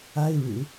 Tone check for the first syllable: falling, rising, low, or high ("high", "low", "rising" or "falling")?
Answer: high